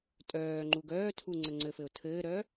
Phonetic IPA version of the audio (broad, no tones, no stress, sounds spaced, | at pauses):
tʼ œː ŋ͡ǃ u ɡ œː tʰ u ŋ͡ǀ ə ŋ͡ǀ ɘ f ɘ ʊ̯ tʰ ɘː ɾ œ